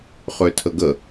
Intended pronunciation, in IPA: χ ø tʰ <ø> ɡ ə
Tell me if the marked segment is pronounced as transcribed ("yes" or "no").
no